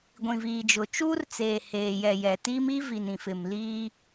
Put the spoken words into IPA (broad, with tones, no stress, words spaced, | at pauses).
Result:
ɡʷĩ˨viː˨d͡ʒʊ˨ t͡ʃuː˦rt͡seː˨ heː˨jɛ˨ jɛ˨ tiː˦mi˦ vi˨nĩ˨fɪ˨m liː˦